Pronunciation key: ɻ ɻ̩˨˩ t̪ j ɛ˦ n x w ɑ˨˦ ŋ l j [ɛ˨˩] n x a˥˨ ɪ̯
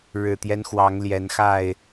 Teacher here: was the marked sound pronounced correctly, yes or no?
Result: no